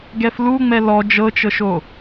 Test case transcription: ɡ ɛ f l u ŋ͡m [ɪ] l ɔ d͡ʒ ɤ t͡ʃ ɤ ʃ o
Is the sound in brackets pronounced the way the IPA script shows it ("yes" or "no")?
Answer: no